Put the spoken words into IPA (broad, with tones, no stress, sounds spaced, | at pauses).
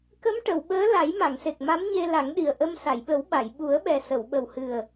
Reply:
k ə˧˥ m ʈ ə˨˩˨ w ɓ əː˧˥ l a˨˩˦ j m a˨˩˨ ŋ s e˨˩ k̚ m a˧˥ m ɲ e˧ l a˨˩˦ ŋ ɗ i˨˩ ə̯ ʔ ə˧ m s a˨˩˨ j ɓ ə˨˩˦ w ɓ a˨˩˨ j ɓ u˨˩˦ ə̯ ɓ ɛ˨˩ s ə˨˩˨ w ɓ ə˨˩ w h ɨ˨˩ ə̯